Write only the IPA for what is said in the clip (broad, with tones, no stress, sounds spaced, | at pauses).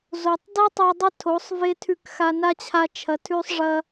z o˨ tˤ d ɐ˦ tˤ o˧ dˤ ɐ˦ tʰ o˨˦ sˤ v e˦ tʰ ʉ˧ k x a˧ n a˦ t͡ɕʰ a˧ t͡ʃʰ ɐ˨ tʰ ʉ˧ sˤ ʐ ɐ˧